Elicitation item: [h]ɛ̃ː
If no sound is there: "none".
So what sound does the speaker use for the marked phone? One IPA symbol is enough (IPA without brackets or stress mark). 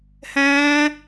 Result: h